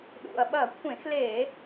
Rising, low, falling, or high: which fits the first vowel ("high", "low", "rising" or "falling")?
low